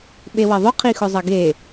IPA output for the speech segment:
ɓewɐðˤʊ qʰixʊzˤɐɡe

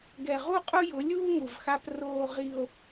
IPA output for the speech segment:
ɡɛ˨ʁu˦qʼʊ˦jʊ˨˦ lʲuː˦ŋu˨vxa˦p roː˦ʁi˦o̯

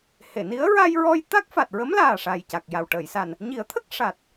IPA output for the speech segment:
he˨˩˨ni˧˥ə̯ ɹa˧jɹɔ˧j t̪a˦˥k̚fa˨˩t̚ɹə˧˥m laː˨˩ ʂaː˨˩jca˨˩k̚ja˨˩w ʈəː˨˩˨jsa˨˩n | ɲi˨˩˦ə̯t̪ʰə˦˥k̚ ʂa˨˩t̚

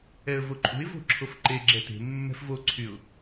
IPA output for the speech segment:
ɛə̯voǃʼṳɪ̯ vo̤ǁʰofǃe ɡ͡ǁɛte̤ mːɛ̤fvo ǀʰyʊ̯

